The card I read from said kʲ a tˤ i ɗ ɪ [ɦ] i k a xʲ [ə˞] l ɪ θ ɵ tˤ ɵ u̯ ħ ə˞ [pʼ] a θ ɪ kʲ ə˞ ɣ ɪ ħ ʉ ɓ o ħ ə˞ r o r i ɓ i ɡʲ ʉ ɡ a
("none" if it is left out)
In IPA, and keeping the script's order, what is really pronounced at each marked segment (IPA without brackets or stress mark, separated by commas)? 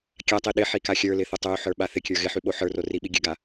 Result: ħ, ə˞, ɓ